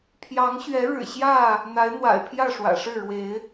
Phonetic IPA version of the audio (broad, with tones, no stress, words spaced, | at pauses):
pʰjɑ˨˦ŋɕɥɛ˨˦ ɻɻ̩˨˩ ɕjä˥˨ | n̪a˨˦ɪ̯n̪wa̰˨˩ɪ̯pʰjä˥˨ ʂwä̰˨˩ʂɻ̩˥˨ɻwe˨˦ɪ̯